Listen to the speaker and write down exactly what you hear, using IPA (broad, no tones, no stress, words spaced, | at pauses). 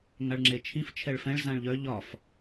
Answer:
ŋaɭŋ͡ǁet͡ʃʰĩf t͡ʃʰɛɭfɛ̃ɭ zãɭʎœ ʎɒf